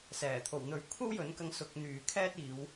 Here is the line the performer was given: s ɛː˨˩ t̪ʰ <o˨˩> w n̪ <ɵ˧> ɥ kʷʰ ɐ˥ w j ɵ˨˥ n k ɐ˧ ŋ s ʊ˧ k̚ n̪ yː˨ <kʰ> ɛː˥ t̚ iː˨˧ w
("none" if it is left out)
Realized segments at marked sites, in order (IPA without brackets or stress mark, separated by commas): o˨˩, ɵ˨˥, kʰ